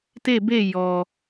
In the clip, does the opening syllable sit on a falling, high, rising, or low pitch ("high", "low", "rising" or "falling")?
falling